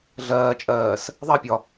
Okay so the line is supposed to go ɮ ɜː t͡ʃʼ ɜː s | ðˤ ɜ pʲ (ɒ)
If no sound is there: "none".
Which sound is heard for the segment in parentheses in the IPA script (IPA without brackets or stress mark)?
ɒ